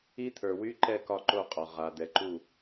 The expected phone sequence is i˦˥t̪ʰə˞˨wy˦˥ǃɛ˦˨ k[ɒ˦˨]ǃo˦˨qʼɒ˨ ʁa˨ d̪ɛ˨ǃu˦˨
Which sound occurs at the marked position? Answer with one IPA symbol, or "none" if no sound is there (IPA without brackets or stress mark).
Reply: ɒ˦˨